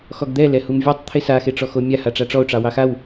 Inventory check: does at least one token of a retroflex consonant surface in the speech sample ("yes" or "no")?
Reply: yes